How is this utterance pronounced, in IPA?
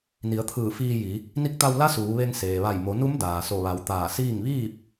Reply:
n i˩˧ ə̯ t̪ʰ ɯː˧˩ f iː˧ j i˩˧ | n i˧ k̚ t̪ a˧ w l a˧˥ s uː˩˧ ʋ e˧ ŋ s eː˩ ʋ a˧˩ j m o˩˧ n u˧˥ m d aː˩ s o˧˩ ʋ a˩˧ w t̪ aː˧˩ s iː˥˨ ŋ ʋ iː˥˨ p̚

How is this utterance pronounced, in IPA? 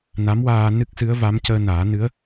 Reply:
n a˧˥ m w aː˧ n ɨ˦˥ k̚ s ɨ˧˥ ə̯ v a˧˥ m c əː˧ n aː˨˩˦ n ɨ˧˥ ə̯

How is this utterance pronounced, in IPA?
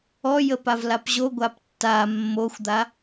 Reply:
ɔ j ə p a v l a p ʑ o ɡʷ a p tː a mː o xʷ d̪ a

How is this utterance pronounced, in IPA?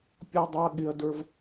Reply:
pʲ ɔ˥ dˤ u˦ ɐ̯ ɠ ɪ˦ ɐ̯ d ə˞˦ v

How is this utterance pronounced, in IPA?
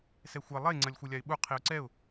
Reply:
s ɛ xʷ ɛ lˠ e ŋ͡ǀ ɐ lʲ xʷ ɘ lʲ a ɪ̯ ɓ u qʰ i ʊ̯ ǀ ɛ ʊ̯

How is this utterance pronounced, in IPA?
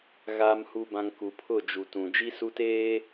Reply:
ɣ aː˨ m h u˨ b ã˨ ŋ k u˨ pʰ ʊ˦˨ d͡ʒ u˨ t ũ˨ d͡ʒ i˦ s u˦ t eː˦

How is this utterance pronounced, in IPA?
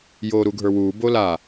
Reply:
j oː ɾ u ɡʱ ə˞ w uː b o l a

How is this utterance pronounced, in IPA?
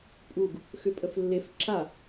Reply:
pʼ u ɡ | x ʏ pʼ ə f lː e f ǁ a

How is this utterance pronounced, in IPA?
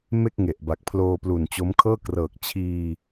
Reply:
m e˥˩ k̚ ŋ e˨˩ ʔ b a˨˩ k̚ pʰ l oː˧ p l u˨˩ n t͡ɕ o˦˥ m kʰ ɤː˥˩ k r ɤː˨˩ k̚ t͡ɕʰ iː˧

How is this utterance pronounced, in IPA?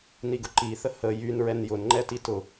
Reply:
n i ɡ ʊ ǃ i θ ə h ə j y n ɹ ɛ n j ʊ n ŋ͡ǃ ɛ t i t ʊ

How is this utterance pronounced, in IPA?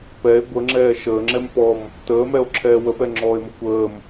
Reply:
p ɛ e̯ ɡʷ ə ŋ͡ǁ ɛː ʃ əː ŋ͡ǁ ɛ m p ɔ m | t əː m ɛ o̯ ǁʰ ɛː w ə p ɛ ŋ͡ǁ ɔː e̯ m ə kʷ əː m

